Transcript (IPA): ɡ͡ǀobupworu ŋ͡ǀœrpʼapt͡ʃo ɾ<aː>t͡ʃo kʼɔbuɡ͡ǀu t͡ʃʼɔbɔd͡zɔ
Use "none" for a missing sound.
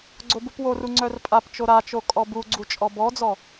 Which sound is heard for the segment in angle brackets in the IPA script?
a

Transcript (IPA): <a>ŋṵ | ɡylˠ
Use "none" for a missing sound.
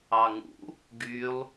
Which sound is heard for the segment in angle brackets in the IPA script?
ɑ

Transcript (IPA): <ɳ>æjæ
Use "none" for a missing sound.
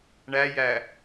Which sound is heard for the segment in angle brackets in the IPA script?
ɳ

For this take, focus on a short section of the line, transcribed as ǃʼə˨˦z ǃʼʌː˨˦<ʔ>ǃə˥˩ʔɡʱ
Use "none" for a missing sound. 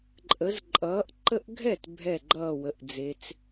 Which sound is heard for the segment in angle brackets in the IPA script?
ʔ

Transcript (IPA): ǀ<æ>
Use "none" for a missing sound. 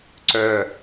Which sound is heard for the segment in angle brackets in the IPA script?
œ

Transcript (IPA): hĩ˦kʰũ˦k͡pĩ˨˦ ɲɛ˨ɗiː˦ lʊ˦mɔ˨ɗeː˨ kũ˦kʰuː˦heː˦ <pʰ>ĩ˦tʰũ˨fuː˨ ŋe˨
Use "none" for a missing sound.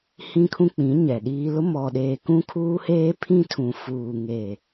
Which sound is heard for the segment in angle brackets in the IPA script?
pʰ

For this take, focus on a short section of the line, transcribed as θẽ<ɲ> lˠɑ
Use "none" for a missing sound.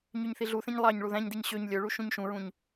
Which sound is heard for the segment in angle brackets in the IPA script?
ɲ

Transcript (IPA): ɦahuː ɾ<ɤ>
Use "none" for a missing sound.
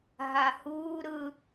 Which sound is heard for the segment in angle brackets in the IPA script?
ɯ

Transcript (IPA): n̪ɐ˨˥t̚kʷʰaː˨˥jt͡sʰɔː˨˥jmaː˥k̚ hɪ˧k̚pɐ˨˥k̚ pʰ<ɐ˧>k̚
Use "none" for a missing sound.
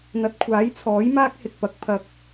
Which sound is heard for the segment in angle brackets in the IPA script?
ɐ˧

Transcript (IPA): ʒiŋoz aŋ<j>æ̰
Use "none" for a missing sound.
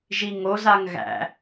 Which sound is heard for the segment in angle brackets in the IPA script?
ɣ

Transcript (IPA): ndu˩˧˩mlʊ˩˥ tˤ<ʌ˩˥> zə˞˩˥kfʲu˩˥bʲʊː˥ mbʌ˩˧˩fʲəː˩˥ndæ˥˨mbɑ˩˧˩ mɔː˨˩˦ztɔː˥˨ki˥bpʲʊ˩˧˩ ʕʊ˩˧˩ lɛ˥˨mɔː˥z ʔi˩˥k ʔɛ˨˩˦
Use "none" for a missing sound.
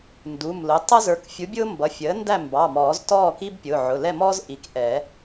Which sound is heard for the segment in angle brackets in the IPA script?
ʌ˥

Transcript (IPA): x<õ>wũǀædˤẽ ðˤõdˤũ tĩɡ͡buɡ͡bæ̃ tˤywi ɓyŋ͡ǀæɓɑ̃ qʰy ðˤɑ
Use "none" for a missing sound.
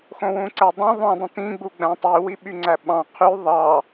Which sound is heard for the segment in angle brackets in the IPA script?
õ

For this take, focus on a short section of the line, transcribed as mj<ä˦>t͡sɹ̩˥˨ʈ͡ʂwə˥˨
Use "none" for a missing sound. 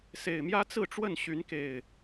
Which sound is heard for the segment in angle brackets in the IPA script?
ä˦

